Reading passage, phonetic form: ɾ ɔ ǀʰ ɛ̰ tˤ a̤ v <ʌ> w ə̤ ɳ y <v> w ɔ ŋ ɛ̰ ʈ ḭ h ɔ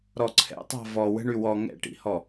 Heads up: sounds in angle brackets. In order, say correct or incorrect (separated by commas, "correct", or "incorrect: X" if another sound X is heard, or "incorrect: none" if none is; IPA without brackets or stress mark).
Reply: incorrect: ɔ, incorrect: none